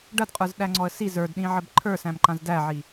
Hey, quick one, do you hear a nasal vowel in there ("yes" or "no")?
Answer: yes